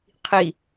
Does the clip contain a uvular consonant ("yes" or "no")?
yes